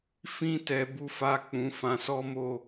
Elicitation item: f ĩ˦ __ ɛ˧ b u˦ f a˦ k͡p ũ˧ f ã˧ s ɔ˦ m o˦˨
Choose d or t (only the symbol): t